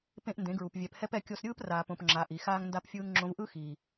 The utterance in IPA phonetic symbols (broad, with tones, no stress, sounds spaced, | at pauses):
p ẽ˦ ʔ n d ẽ˨˦ ɡ ɹ u˨ p vʲ ɛ˨ p h ɛ˦ p ɛ˧ kʲ o˧ s ɾʲ ɯː˦ p r aː˨ p õ˨ p ŋ͡ǁ a˨ ʔ i˨ x aː˦ ŋ n d a˦ p fʲ ɯː˦ ŋ ŋ͡ǁ õ˧ v ʔ ɯ˦ x iː˨